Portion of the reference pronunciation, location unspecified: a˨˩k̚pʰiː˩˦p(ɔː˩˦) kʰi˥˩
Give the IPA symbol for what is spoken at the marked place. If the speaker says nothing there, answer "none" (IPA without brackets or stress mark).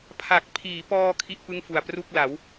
ɔː˧